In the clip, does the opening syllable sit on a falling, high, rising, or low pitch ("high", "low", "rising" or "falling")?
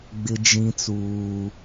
high